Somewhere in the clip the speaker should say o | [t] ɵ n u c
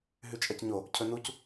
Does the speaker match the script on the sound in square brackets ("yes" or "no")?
no